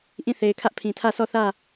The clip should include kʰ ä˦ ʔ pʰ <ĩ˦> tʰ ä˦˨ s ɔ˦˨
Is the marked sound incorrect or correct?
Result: incorrect: ĩ˨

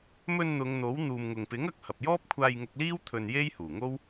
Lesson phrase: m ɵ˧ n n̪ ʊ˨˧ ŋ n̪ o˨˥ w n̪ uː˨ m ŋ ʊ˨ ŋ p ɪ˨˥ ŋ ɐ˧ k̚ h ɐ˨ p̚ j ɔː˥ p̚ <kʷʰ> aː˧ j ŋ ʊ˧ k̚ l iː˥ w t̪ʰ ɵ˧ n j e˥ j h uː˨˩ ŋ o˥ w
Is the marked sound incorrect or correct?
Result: correct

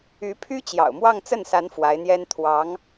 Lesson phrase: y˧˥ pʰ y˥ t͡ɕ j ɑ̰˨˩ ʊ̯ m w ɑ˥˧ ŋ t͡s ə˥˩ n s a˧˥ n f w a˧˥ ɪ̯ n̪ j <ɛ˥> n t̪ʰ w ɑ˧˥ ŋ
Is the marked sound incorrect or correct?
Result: correct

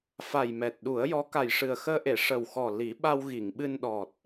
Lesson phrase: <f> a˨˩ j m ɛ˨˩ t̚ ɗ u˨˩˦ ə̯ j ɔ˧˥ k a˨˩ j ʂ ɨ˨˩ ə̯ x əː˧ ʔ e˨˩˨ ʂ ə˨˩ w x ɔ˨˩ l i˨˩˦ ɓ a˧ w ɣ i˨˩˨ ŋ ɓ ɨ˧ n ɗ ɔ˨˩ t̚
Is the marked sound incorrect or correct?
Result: correct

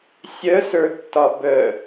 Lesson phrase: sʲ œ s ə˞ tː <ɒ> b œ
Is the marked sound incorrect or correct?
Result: correct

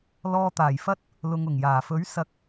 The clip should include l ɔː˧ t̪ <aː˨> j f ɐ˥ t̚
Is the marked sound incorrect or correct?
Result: incorrect: aː˨˩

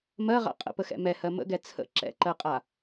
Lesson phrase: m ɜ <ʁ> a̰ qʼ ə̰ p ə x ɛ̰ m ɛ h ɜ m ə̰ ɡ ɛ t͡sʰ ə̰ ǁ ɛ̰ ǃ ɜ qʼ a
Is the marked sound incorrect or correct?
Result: correct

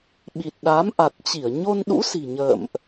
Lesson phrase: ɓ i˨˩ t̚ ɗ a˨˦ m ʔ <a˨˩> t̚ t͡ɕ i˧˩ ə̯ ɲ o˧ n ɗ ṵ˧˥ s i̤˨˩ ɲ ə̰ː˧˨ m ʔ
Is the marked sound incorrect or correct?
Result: correct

